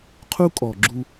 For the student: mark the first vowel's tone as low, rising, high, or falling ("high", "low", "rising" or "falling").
high